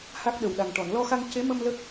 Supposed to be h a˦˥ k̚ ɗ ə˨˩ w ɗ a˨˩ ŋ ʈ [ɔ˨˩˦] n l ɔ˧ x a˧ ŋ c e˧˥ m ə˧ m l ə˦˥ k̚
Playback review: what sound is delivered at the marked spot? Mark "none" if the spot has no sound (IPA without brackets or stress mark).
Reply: ɔ˨˩˨